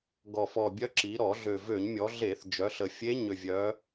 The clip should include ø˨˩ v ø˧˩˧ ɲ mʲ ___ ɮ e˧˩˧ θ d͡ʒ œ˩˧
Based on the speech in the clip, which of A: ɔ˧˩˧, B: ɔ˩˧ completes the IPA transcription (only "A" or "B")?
B